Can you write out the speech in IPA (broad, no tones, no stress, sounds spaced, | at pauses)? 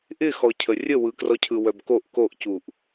ʔ ɪ x ɔ cʰ ə rʲ ə w ɯ k r ɔ cʰ ɯ w œ b k o ʔ k o ʔ c u ʔ